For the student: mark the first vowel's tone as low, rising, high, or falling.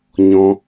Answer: high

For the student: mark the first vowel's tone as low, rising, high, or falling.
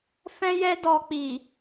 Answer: high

